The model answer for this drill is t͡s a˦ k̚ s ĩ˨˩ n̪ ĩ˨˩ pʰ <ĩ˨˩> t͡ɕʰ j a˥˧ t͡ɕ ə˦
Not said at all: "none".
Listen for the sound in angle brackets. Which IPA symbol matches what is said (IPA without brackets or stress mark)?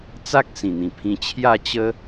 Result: ĩ˧